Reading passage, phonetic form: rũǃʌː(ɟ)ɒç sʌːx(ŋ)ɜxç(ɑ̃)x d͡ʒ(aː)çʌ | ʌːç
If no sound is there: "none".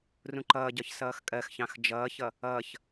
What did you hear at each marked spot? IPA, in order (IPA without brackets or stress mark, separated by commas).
ɟ, kʼ, ɑ̃, ʌː